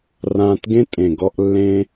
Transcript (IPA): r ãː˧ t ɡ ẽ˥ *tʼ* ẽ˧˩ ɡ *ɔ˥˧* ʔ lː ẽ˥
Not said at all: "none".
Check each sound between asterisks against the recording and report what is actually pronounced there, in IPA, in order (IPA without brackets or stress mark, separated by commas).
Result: tʼ, ɔ˥˧